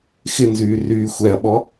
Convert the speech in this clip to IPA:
x ɪ n z yː r yː xʷ ɛ ɐ̯ ɓ ɔ

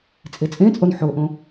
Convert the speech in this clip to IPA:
t͡sʼ e t͡sʼ ẽ t͡sʼ o n ħ o ʔ õ

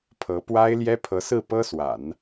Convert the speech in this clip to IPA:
pʰ ɤ˧˥ p w a˥ ɪ̯ l j ɛ˥ pʰ ɤ˧˥ s ɹ̩˥˩ p ɤ˥ s w a̰˨˩˦ n

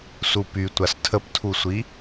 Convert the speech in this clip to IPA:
s u p y tʷ a s tʰ ə p tʰ u sʷ i

